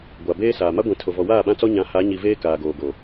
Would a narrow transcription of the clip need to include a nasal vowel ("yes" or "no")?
yes